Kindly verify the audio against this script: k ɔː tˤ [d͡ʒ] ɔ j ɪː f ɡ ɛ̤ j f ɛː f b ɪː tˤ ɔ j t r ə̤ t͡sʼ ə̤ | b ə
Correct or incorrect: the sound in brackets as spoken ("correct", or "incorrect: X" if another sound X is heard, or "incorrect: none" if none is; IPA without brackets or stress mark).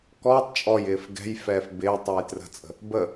incorrect: t͡ʃʼ